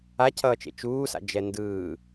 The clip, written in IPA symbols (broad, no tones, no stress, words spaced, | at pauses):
acʰʌːt͡ʃḛ t͡ʃuːsa̰ d͡ʒɛndɯː